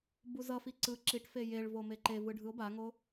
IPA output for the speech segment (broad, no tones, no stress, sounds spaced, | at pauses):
b u z ʌ f i ǀ ɯ ǁ i ʈ f e j e ɭ v o m e ǃ e v ɯ ɖʱ ɯ o̯ b a ŋ o